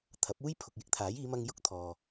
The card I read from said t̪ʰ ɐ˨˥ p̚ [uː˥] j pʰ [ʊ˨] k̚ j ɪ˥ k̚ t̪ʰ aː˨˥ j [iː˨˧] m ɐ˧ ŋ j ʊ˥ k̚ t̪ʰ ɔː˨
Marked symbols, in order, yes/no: yes, yes, yes

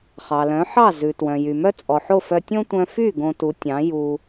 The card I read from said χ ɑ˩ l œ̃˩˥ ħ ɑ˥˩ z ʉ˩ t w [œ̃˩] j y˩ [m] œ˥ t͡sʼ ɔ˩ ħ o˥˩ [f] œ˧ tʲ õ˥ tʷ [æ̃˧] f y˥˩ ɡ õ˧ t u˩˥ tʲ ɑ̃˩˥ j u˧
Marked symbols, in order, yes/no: yes, yes, yes, no

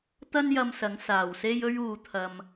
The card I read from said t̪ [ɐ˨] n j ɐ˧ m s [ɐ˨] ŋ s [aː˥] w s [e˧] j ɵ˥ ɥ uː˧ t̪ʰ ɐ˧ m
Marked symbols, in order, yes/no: no, no, no, no

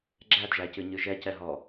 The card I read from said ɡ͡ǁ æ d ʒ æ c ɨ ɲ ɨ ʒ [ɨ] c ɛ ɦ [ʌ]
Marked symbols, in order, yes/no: no, no

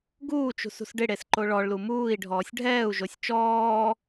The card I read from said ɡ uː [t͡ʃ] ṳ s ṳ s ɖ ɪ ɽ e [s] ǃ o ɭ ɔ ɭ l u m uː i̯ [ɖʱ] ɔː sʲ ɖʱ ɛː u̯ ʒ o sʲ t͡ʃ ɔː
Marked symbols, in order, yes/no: yes, yes, yes

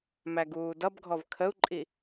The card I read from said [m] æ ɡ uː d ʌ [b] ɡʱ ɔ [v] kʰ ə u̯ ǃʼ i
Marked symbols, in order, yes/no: yes, yes, yes

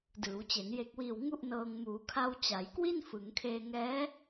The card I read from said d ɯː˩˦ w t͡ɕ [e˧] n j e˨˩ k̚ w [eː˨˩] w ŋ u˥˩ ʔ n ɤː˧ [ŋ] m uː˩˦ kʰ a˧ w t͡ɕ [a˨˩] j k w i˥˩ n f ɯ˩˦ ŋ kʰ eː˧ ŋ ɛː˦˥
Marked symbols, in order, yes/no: no, no, yes, no

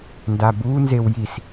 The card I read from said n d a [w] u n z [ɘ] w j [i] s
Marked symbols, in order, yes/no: no, no, yes

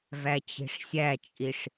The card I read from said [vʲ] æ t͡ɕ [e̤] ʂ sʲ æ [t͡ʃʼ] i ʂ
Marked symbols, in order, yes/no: no, yes, yes

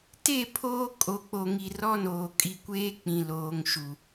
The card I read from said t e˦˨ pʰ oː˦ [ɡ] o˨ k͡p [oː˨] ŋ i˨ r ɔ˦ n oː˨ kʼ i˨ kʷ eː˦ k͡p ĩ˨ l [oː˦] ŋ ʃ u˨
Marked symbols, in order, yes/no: no, no, no

